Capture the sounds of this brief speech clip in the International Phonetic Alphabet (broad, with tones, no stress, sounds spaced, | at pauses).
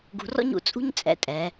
ɡ ṳ˧ r ɔ̰˥ ɲ ṵ˧ t͡sʼ ṳ˥ ɲ t͡sʼ ɛ̰˧ tʼ ɛ˩˧